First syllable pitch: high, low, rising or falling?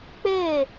falling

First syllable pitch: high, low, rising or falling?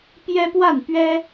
high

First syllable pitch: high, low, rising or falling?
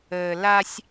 low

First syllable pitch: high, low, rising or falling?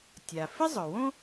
low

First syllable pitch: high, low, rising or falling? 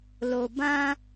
low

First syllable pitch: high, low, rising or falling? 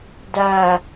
low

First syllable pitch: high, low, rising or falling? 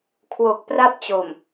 low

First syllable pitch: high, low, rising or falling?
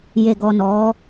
low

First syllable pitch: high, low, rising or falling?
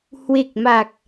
low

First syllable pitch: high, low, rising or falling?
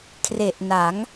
low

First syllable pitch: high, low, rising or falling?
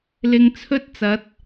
low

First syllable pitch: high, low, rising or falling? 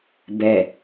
low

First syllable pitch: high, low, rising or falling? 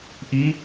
rising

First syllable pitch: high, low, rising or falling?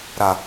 low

